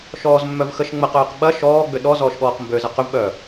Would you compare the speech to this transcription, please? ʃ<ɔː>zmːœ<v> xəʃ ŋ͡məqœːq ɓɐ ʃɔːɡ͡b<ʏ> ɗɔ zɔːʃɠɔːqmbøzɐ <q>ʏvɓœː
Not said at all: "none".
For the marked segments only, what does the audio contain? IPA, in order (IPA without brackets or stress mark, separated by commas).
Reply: ɔː, v, ʏ, q